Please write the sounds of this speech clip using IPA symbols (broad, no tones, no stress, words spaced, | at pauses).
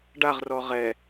ɖaʁrɔ ʁɛ